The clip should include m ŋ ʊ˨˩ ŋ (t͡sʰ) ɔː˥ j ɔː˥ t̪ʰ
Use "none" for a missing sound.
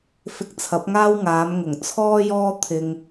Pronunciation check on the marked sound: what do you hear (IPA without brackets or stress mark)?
t͡sʰ